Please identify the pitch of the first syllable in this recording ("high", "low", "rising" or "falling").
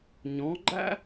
rising